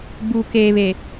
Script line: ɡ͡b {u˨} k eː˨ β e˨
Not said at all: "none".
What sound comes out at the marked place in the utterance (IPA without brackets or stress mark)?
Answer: u˨